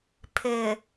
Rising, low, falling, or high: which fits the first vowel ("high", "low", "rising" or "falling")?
low